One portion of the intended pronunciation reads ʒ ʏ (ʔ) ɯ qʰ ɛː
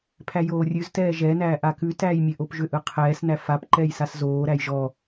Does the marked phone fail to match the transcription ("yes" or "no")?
no